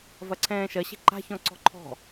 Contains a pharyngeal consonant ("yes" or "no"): no